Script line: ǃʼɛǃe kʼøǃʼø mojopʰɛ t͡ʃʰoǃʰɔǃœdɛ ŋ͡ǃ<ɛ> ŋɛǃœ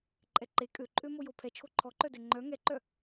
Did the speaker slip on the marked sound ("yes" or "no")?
yes